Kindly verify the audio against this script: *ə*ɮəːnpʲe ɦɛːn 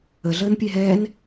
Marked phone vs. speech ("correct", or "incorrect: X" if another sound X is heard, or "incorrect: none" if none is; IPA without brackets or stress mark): correct